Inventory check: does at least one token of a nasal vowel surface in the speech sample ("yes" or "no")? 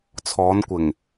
no